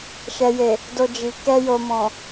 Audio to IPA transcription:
ʃ ɛ˨ j e˨ | d o˧ d͡ʒ i˨ k ɛ˧ j o˨ m ɔ̃˨

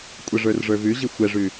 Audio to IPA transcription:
kʷʼ ə ʐ ə˞ r ʐ ə˞ v ʉ ʑ i xʷ ɛ ʐ ʉ

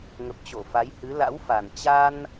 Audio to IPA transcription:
ŋ ə˨˩ p̚ t͡ɕ o˧˩ f a˨˦ j h ɨ˨˦ l a̰˧˥ w f a˨˩ n t͡ɕ a˧ n

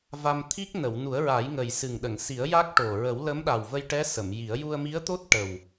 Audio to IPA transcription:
v a˧ m t̪ʰ i˦˥ k̚ n ə˨˩˨ w n u˨˩˦ ə̯ ɹ a˨˩˦ j ŋ ə˨˩ j s ɨ˨˩ ŋ ɗ ə˨˩˨ ŋ s i˨˩˦ ə̯ j a˦˥ k̚ ʈ o˨˩ ɹ ə˨˩˦ w l ə˧˥ m ɗ a˨˩ w v ə˧ j ʈ ɛ˧˥ s ə˨˩˨ m j i˨˩˦ ə̯ j u˧ ə̯ m i˧˥ ə̯ t̪ o˦˥ t̚ ʈ ə˨˩ w

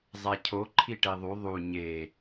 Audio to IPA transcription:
zˤ æ cʰ o ǃʰ i ʈ e ðˤ u ðˤ u ɲ e

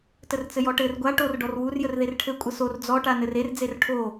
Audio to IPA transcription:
t ə r t͡s ɘ j ɔ ʈ ɘ r ɡʷ a ʈ o r ɖ ɔ r w u r j ə r ð e r ʈʰ ɘ kʷʼ ə s o r d͡z ɔ ʈ a n ɘ r e r d͡z e r ʈʰ o

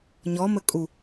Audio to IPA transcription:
ɲ ɔ m ə kʼ u

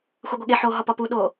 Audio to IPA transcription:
xʷ e ɡʷ e ɠ e ħ oː ɦ ɒ p ɒ p u ɗ oː

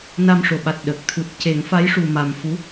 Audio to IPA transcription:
n a˧ m ʂ o˨˩ ɓ a˨˩ t̚ ɗ ə˨˩ k̚ t̪ʰ u˨˩ t̚ c e˨˩˦ ŋ f a˧˥ j ʂ u˨˩ m a˨˩ m f u˧˥

